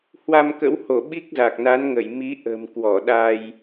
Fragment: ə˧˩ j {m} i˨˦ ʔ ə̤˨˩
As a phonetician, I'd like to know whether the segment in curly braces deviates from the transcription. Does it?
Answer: no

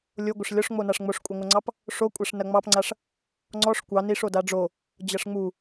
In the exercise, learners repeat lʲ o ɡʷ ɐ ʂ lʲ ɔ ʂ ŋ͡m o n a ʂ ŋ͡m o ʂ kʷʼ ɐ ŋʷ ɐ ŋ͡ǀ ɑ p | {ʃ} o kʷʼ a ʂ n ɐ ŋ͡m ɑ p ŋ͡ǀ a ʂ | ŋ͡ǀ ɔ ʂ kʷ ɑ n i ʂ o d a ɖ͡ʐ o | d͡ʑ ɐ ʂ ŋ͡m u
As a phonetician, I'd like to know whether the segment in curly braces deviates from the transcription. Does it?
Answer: yes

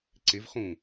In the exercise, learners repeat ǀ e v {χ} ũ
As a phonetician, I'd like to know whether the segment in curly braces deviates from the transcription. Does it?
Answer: no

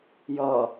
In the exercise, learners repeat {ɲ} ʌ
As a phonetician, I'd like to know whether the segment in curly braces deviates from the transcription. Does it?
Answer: yes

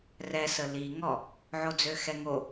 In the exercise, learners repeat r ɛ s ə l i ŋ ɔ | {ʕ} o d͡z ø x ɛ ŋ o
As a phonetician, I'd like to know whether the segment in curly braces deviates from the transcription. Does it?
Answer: no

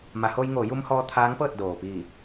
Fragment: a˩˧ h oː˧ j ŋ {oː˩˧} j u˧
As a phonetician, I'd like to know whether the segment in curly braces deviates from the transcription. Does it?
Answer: no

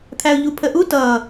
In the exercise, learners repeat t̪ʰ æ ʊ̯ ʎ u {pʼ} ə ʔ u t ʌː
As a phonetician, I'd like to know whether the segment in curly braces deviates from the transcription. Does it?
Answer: yes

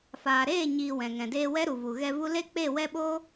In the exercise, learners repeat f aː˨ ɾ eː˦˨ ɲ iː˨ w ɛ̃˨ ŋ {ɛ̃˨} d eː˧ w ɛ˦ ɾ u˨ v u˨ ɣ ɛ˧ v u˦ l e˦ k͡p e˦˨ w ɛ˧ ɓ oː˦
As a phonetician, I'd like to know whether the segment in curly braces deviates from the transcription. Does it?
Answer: no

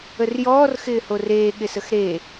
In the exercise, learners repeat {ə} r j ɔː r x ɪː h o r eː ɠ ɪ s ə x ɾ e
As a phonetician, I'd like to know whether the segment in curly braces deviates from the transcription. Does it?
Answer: no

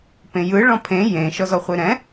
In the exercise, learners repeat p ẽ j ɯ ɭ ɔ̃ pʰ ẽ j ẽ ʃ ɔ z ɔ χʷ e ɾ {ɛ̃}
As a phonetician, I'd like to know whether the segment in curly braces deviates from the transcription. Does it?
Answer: no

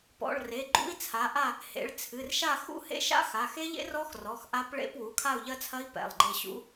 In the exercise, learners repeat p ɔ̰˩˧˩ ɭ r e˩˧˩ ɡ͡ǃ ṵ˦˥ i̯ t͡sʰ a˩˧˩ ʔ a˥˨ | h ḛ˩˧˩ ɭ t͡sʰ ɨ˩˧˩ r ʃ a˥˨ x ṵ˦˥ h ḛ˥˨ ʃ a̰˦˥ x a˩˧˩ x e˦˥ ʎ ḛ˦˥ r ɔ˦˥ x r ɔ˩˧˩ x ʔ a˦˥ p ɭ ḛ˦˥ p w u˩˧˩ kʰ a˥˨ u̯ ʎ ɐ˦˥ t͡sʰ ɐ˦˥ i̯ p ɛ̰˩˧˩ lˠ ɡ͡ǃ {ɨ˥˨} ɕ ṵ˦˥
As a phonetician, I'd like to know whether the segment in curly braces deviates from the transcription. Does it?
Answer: yes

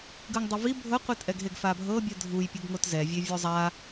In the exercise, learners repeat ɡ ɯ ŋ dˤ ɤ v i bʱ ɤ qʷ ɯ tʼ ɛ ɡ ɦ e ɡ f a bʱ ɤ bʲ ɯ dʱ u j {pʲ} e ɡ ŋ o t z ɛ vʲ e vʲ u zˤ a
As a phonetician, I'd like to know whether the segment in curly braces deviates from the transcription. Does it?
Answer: no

